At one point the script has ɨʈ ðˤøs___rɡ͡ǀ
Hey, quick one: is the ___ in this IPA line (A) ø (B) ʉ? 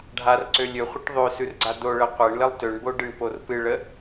B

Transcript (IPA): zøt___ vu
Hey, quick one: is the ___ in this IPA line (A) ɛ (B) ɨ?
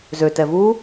A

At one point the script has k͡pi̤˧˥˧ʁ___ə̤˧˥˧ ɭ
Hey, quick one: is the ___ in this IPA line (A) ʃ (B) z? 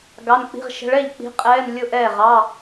A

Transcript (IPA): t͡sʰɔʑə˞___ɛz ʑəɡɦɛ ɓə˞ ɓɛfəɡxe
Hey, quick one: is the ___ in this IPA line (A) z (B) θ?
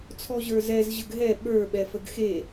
A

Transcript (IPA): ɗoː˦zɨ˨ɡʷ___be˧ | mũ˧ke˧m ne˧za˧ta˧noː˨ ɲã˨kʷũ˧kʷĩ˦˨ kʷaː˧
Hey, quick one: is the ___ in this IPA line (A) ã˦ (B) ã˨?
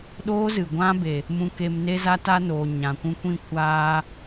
A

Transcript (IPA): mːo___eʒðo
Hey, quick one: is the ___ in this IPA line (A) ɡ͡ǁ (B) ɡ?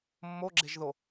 A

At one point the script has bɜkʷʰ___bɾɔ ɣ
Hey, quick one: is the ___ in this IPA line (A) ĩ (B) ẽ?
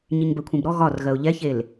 A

